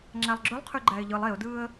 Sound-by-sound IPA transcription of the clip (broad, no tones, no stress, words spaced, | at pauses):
ŋ͡ǁælˠɡ͡ǁølˠqʰy ɡ͡ǃæɪ̯ʎɯlˠ eʊ̯dɯːə̯